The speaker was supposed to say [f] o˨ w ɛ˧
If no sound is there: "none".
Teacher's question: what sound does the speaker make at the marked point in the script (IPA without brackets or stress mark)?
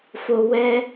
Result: f